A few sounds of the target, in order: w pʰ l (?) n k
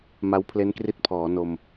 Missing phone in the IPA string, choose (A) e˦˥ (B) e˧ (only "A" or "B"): A